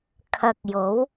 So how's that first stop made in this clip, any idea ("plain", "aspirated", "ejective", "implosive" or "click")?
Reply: aspirated